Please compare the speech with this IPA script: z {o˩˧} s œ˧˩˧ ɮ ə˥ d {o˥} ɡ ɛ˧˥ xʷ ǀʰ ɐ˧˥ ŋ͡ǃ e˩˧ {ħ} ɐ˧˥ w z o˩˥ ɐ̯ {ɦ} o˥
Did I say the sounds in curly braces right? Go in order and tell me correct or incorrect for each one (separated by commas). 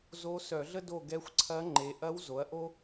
incorrect, incorrect, incorrect, incorrect